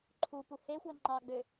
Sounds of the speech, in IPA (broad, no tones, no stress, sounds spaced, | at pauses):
ǃʰ u p u h e xʷ æ ŋ͡ǃ ɑ ɡ͡b ø